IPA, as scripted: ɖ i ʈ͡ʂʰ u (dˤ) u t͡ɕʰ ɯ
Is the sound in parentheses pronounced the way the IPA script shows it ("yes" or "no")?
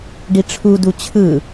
no